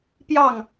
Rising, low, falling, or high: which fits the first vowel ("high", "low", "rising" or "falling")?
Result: falling